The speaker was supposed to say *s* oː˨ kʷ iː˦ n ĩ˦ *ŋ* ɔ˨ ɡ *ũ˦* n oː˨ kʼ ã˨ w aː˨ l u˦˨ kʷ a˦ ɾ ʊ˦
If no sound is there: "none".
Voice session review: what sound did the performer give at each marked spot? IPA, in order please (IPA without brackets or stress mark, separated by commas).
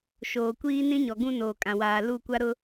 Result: ʃ, ɲ, ũ˦